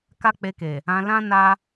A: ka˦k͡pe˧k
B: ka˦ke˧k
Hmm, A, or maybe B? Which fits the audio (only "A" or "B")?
A